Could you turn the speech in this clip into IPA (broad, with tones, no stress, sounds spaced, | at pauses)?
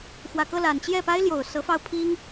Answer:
x w ä˨˩ k ɤ˥˩ l a˨˩ n t͡ɕ j ɛ˥˩ p a˥ ɪ̯ l j o˨˩ ʊ̯ s ɤ˧˥ f ɑ˥˩ ʊ̯ pʰ i˥ ŋ